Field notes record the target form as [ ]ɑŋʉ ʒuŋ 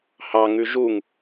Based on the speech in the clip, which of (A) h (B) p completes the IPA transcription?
A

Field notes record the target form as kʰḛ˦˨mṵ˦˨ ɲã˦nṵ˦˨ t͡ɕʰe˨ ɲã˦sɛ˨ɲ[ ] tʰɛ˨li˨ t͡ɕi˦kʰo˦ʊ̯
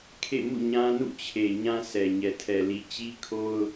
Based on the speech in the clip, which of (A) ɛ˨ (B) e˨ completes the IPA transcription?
A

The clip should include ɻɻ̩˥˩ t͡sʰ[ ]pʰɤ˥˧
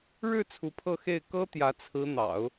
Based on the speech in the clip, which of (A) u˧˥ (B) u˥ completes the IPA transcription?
A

